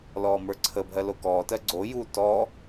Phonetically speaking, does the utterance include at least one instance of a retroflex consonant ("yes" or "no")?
no